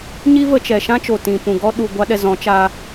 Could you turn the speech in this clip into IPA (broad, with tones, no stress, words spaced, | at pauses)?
ɲi˦və˧ t͡ʃɛ˨ ʃã˦t͡ʃo˨ tĩ˨pũ˨ɡɔ˦ ɗu˨ɡʷa˧ ɗɛ˨ zɔ̃˨˦t͡ʃaː˧